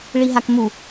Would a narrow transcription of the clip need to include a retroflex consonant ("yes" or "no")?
yes